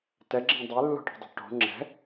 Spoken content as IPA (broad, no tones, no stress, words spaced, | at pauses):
tɛɡ͡ǁẽ dˤelːo̤ʈe̤dˤo̤ ʈo̤ ŋ͡ǁɛ̤